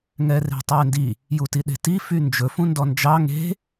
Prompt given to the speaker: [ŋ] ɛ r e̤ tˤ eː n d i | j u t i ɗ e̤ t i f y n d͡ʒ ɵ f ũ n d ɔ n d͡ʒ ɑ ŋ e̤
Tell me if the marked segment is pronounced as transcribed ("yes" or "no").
yes